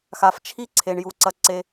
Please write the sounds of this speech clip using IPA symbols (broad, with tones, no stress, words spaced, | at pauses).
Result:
xa˨ft͡ʃʰi˦ ǀʰe˨ɳju˨ǀɐ˧ǀe˧